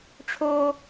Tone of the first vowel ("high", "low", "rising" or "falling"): high